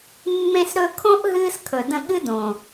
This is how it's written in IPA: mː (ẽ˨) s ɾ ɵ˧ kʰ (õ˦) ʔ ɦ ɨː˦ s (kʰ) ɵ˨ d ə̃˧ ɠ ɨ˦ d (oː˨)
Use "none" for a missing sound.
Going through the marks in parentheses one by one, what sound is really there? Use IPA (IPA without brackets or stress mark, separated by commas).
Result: ẽ˧, õ˦, kʰ, õː˨